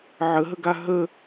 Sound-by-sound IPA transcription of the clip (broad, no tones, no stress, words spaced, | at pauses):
ʕəɦəɡa ɦə